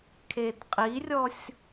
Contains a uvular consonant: yes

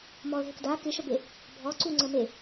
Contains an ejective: no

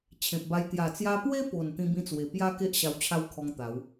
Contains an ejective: no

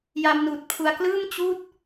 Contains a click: no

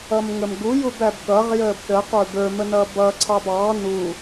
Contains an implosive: yes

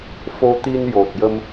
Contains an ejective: no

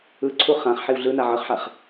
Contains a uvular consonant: yes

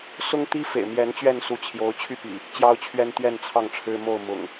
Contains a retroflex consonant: yes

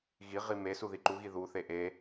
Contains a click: yes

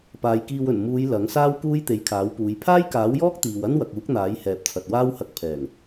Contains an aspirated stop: yes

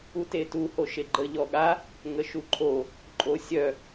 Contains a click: yes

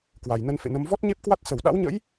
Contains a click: no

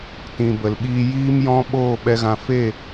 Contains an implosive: yes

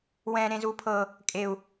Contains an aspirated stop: yes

